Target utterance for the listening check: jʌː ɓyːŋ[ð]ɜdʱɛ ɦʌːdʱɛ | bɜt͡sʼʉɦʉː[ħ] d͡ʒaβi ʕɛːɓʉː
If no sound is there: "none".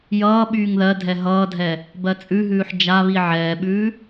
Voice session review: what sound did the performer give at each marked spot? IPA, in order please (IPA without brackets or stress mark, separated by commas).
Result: ð, ħ